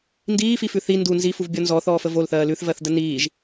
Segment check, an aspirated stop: absent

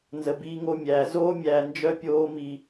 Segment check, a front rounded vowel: present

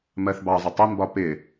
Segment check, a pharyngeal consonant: absent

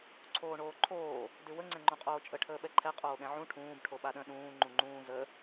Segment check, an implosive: present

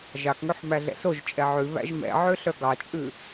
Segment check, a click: absent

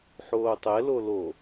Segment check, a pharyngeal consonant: present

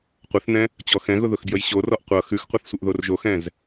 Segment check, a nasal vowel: present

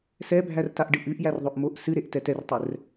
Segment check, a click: absent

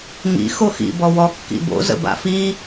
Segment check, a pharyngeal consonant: absent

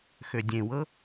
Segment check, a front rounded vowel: present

